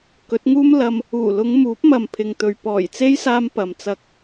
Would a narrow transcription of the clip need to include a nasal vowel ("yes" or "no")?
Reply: no